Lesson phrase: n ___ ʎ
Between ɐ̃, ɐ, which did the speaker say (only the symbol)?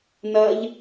ɐ